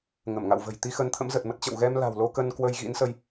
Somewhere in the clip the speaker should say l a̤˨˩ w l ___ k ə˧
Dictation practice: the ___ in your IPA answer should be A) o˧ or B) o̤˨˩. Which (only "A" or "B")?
A